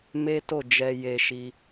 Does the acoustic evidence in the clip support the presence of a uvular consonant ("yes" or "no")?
no